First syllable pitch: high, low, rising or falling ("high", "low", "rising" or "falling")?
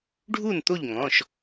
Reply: falling